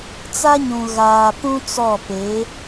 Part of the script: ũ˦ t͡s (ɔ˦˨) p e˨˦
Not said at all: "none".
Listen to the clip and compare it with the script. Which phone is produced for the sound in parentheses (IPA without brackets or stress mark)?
ɔ˦˨